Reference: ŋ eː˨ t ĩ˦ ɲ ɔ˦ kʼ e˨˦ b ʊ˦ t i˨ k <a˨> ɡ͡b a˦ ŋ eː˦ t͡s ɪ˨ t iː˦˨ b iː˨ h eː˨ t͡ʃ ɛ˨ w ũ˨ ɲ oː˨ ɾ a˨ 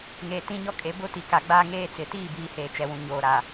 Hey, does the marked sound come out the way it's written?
yes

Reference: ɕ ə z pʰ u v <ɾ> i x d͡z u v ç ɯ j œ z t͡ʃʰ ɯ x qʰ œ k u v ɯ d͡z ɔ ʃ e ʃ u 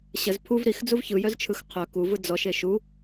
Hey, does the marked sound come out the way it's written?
yes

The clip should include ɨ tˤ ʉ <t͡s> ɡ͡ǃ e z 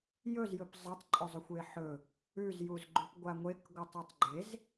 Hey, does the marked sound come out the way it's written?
no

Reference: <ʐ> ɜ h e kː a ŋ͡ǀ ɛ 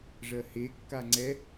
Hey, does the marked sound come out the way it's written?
yes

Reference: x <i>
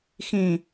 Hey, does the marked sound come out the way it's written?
no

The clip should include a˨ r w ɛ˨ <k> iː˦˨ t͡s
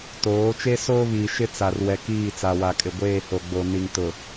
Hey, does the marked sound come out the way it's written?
yes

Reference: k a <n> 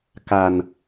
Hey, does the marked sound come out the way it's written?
yes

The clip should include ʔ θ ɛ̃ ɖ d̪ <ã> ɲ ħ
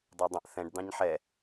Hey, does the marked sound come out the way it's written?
no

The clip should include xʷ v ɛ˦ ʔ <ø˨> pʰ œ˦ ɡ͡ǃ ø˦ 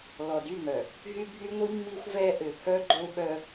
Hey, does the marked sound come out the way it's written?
yes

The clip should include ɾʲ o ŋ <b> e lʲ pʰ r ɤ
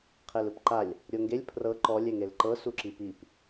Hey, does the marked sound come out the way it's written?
no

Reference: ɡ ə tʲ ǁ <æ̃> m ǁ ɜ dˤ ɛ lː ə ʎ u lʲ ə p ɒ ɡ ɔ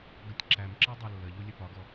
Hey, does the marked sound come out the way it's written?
no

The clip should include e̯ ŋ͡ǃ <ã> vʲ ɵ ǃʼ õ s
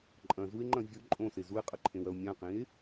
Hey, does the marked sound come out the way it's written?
no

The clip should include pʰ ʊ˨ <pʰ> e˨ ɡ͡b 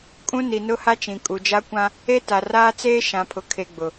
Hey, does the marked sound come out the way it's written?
no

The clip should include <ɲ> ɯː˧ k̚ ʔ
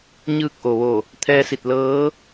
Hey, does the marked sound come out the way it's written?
yes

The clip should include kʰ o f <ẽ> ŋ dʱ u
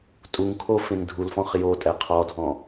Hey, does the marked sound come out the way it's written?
yes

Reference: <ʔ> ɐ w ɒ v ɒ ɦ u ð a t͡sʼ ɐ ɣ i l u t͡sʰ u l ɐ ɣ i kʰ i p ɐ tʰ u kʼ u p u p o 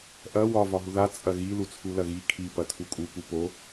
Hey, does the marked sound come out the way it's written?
yes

